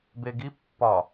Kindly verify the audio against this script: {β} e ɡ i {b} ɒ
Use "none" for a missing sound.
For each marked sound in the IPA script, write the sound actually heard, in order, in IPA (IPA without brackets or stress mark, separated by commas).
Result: b, pː